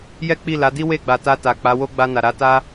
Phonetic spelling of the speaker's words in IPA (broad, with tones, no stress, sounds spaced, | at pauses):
j ɛ˦ k͡p i˦˨ l a˨˦ d i˦ w e˦˨ ɡ͡b a˨ t a˧ t a˨ k͡p a˨˦ w o˦ ɡ͡b a˧ n a˨ ɾ a˨˦ t a˦